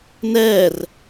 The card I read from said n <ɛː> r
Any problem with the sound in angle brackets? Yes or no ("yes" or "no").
no